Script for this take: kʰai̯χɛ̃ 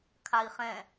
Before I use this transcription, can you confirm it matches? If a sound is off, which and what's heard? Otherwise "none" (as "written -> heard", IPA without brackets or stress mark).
none